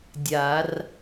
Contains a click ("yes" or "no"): no